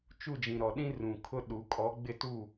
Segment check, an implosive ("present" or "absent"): present